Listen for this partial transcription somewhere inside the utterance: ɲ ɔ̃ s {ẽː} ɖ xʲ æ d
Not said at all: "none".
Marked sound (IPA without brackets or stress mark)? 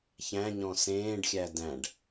ẽː